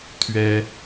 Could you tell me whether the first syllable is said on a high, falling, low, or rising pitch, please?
high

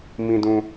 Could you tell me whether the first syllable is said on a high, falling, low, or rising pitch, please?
low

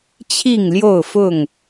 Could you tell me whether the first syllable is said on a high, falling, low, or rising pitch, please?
falling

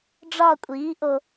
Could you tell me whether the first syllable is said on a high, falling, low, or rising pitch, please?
falling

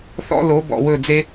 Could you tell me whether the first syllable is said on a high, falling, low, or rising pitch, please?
high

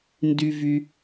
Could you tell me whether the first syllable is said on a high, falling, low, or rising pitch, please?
low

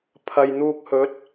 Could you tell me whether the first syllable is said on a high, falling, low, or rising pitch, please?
low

